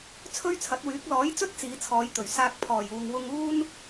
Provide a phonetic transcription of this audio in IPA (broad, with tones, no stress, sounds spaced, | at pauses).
t͡sʰ ɵ˥ ɥ t͡sʰ ɐ˨˥ t̚ w yː˨˥ k̚ l ɔː˨˥ j t͡s ɵ˥ t̚ t͡s iː˨˧ t͡sʰ ɔː˨˧ j t̪ ɵ˨˩ ɥ s aː˧ k̚ pʰ ɔː˨˩ j uː˨ ŋ w ʊ˧ ŋ uː˥ n